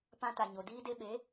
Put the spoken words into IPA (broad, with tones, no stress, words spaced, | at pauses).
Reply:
pã˧ta˨ɲo˨ diː˧de˧ɓe˨˦